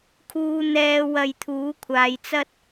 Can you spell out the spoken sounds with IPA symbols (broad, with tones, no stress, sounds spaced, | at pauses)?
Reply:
kʰ uː˨ n̪ ɛː˨˧ w ɐ˧ j t̪ʰ uː˨˥ kʷʰ aː˨ j t͡s ɐ˥ t̚